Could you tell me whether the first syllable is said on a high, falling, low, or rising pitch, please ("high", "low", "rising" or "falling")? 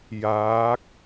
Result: rising